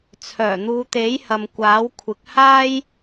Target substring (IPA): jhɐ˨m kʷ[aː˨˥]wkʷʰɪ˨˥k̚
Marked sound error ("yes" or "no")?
no